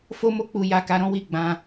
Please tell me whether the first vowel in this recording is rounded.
yes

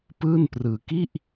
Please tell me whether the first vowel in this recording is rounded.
no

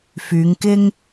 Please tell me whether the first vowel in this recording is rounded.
yes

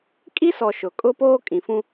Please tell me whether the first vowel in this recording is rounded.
no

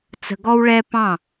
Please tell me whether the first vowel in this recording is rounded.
no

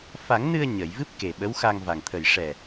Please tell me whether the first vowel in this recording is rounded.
no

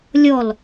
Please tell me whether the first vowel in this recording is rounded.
yes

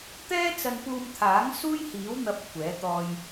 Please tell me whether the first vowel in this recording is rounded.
no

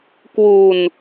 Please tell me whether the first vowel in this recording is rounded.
yes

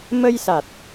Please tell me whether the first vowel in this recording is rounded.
no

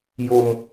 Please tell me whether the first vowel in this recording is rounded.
yes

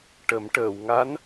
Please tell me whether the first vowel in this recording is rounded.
no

